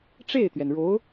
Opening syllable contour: falling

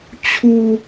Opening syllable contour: high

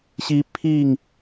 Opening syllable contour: high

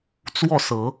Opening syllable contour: falling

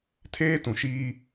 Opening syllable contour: high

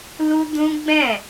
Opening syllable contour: high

